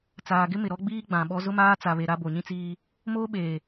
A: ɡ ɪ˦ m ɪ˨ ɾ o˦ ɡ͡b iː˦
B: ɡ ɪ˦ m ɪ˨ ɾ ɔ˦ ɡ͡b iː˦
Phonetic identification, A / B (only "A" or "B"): B